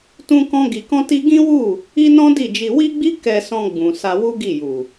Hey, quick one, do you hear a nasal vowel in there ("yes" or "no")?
yes